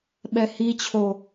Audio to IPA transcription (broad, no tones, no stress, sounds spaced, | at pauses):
ɓ ɛ h i t͡ɕʰ o